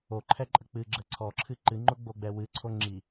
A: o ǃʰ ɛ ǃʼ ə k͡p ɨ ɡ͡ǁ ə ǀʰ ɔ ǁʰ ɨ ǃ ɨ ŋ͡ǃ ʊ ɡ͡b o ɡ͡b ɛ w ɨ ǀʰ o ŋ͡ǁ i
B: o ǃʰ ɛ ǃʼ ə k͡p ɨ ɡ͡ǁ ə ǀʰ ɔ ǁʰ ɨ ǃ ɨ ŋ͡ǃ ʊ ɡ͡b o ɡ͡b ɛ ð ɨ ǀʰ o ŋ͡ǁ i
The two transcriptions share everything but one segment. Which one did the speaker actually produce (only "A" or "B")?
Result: A